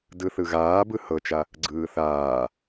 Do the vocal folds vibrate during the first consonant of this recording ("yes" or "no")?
yes